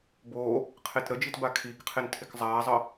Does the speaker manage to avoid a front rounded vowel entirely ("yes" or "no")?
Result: yes